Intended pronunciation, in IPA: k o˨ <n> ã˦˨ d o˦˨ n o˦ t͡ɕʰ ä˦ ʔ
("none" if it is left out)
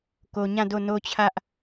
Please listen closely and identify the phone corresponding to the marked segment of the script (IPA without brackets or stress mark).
ɲ